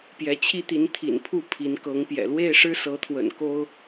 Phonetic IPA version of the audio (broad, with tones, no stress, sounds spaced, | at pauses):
p j ɛ˨˦ t͡ɕʰ i˦ t̪ i˨˦ n t̪ʰ ḭ˨˩ n pʰ u˥˨ pʰ i˨˦ n k ɤ˨˦ ŋ p j ɛ̰˨˩ l w e˥˨ ɪ̯ ʂ ɻ̩˦ s ɤ˨˦ t̪ʰ w ə̰˨˩ n k o˦ ʊ̯